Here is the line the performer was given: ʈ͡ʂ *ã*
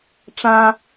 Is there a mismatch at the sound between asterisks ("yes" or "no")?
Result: no